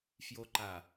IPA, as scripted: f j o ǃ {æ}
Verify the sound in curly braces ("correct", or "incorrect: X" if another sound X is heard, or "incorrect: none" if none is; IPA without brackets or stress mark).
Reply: incorrect: a